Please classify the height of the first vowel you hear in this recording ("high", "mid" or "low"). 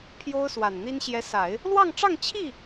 mid